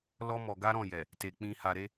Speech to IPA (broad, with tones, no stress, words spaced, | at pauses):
lɔ˦mɔ˧ɡa˦ ɾɔ̃˦˨jɛ˨ | te˧ k͡pĩ˧ha˧ɾe˦